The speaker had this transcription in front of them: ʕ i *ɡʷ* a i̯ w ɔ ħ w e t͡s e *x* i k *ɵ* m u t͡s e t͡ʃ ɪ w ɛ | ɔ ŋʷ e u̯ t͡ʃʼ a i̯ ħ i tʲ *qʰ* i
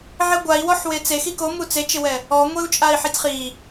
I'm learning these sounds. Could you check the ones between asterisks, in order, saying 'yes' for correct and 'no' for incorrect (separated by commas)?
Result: yes, yes, no, no